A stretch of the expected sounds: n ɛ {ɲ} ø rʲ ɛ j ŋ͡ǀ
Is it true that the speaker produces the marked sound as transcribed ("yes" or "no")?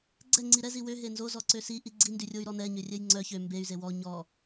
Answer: yes